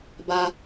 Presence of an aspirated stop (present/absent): absent